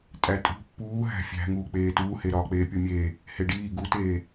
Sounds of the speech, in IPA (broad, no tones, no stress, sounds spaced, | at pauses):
tʼ æ tʼ ṳ pː uː ɦ æ̤ fʲ æ̤ ŋ uː k͡p eː t uː h e ɾ ɒː k͡p eː pʲ u mʲ eː | h e ɖ iː ɡ u t eː